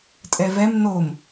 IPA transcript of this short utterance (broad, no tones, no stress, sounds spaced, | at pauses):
tʼ ɛ v ɛ m n o m